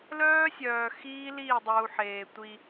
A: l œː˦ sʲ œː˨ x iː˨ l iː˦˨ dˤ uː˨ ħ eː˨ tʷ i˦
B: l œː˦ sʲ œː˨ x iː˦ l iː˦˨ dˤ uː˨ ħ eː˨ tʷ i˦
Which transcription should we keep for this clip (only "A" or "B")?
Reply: B